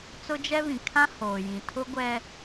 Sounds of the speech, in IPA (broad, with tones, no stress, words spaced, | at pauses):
t͡sʊ˦d͡ʒɛ˦βĩ˨ kʰã˦ hoː˨jĩ˨ tʰʊ˦ ɡʷɛ˦